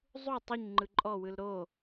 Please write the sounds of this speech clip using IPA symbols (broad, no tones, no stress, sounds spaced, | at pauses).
zˤ u tˤ u ɲ ŋ͡ǃ ɯ ǃʼ ɔ w ɯ l ɾ o